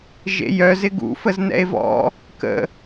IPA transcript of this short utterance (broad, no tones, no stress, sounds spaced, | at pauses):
ʒ ḛ j œ z ɪ ɡ ṵ f ə z n ɛ̰ e̯ v ɔ̰ | k ə̰